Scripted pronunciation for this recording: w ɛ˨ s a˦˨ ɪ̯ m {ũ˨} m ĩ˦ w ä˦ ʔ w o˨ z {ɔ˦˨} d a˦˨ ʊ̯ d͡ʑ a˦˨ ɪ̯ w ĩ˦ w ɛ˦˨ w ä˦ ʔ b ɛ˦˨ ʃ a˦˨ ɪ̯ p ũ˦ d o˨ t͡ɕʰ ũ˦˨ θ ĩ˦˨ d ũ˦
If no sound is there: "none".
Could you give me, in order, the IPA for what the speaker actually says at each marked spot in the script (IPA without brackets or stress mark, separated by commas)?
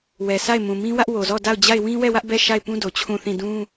ũ˨, ɔ˦˨